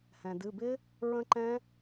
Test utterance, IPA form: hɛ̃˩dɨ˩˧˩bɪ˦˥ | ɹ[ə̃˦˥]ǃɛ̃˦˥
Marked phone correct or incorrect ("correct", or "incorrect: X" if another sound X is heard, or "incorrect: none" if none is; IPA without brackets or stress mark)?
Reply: correct